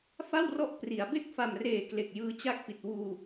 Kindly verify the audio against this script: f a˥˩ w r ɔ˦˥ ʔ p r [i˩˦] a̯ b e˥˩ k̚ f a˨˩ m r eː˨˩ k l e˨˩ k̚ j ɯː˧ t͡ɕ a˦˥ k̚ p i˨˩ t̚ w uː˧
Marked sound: correct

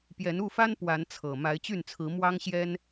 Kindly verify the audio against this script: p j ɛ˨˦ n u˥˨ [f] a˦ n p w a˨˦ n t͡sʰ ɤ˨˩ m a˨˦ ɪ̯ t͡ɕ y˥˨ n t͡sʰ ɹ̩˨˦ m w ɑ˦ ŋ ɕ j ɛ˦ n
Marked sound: correct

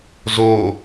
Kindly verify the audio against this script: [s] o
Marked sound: incorrect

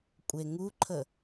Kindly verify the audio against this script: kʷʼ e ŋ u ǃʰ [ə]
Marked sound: correct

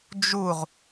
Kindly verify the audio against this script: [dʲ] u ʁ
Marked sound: incorrect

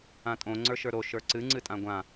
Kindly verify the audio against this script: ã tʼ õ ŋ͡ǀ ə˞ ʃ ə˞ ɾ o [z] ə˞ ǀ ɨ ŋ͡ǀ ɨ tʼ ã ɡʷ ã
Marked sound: incorrect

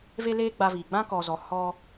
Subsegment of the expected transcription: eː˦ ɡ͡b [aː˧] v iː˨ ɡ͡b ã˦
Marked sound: incorrect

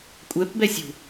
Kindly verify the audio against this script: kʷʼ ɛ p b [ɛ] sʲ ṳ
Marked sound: correct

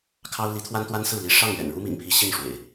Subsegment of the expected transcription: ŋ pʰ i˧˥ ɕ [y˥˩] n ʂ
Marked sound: incorrect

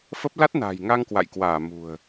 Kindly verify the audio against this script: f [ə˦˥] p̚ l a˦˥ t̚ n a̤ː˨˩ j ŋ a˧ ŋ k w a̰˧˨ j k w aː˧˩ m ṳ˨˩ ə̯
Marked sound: correct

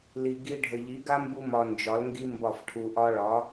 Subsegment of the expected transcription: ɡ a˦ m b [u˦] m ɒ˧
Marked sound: correct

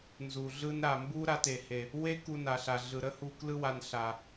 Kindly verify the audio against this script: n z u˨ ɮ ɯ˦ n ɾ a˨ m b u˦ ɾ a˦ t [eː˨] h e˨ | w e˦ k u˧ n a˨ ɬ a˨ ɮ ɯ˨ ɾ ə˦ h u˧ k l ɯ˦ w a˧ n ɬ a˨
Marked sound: incorrect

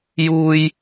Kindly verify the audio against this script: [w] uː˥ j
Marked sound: incorrect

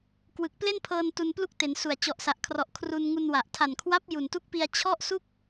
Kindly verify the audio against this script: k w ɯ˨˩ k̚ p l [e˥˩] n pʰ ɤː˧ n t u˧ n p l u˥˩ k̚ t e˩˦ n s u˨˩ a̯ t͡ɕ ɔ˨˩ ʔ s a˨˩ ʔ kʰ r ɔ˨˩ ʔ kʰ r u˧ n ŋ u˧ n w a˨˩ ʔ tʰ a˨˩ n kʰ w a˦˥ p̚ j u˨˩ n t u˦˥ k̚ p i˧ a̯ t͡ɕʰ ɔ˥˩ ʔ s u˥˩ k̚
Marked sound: correct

